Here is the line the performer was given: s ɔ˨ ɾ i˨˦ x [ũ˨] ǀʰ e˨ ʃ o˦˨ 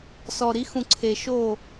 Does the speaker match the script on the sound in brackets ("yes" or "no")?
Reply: yes